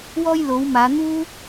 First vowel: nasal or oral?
oral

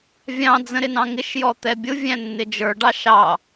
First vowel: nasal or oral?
nasal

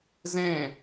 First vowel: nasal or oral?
nasal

